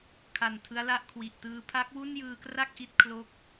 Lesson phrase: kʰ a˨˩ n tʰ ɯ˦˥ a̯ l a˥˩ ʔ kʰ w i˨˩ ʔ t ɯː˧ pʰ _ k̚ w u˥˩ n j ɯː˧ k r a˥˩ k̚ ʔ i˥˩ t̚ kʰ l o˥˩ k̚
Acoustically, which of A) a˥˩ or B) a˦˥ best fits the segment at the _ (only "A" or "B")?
B